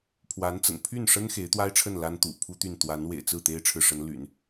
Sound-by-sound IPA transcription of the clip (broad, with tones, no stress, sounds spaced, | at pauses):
pʰ w a˧˥ n t͡s ə̰˨˩ n pʰ y˥˩ n ʂ ə˥ n x e˧˥ ɪ̯ t̪ w a˥ ɪ̯ ʈ͡ʂʰ ə˥˩ n l a˥ n t̪ ṵ˨˩ pʰ u˥ t̪ y˥˩ n t̪ w a˧˥ n w ḛ˨˩ ɪ̯ t͡s ɹ̩˥˩ t̪ e˥ ɪ̯ ʈ͡ʂʰ ɻ̩˨ ʂ ə˧˥ n l y̰˨˩˦ n